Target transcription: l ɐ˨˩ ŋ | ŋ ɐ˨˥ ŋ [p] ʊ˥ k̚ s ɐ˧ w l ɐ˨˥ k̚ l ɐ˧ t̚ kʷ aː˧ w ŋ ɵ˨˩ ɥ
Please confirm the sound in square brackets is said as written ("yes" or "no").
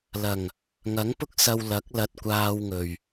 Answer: yes